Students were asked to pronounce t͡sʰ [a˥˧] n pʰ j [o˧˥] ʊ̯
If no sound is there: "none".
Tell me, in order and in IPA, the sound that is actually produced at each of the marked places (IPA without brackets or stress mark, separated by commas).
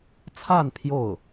a˥˧, o˥˩